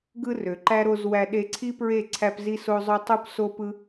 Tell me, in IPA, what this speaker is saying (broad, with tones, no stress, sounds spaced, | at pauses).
ɡ ɯ˦ r ø˨ ǃ æ˦ ɾ o˧ z w æ˧ ɗ e˧ ǀʰ i˦ p ɹ e˦˨ ǀʰ æ˦ p z i˦ s o˦ zˤ ø˦ tˤ u˦ p s o˦ p ɯ˦